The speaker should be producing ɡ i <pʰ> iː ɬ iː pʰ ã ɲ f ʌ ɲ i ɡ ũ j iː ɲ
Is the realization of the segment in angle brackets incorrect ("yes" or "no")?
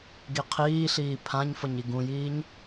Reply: yes